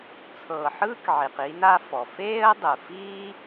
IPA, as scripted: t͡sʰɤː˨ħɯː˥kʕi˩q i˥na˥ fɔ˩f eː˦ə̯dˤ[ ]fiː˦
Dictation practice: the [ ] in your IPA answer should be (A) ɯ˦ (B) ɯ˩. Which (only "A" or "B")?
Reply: B